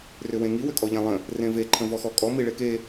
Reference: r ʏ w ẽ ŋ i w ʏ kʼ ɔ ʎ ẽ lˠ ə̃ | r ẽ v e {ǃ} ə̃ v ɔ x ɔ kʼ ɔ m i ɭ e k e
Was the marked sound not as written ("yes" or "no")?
yes